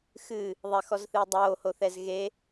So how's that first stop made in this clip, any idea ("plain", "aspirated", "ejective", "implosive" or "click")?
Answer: plain